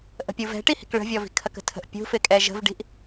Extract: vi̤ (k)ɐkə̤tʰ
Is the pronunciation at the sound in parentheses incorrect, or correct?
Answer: incorrect: kʰ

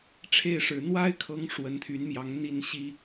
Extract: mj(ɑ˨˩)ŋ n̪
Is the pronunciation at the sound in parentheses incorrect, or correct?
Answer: incorrect: ɑ˨˦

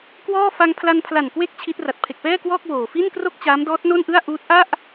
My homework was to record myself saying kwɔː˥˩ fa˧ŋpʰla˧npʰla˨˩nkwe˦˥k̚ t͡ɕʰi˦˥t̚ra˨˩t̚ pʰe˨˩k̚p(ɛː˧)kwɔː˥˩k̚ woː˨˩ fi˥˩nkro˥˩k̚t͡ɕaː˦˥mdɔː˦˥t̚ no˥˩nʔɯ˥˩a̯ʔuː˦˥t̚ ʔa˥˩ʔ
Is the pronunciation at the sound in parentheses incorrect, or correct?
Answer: incorrect: ɛː˥˩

